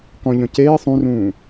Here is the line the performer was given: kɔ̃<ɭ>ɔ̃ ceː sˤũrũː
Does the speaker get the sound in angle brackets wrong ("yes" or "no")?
yes